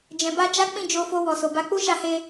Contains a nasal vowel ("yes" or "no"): yes